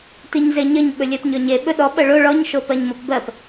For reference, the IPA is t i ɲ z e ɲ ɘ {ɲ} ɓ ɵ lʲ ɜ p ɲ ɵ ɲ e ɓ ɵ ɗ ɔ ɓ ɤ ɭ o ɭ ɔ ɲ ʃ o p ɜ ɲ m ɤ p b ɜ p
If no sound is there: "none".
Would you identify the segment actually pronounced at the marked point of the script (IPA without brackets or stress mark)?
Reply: ɲ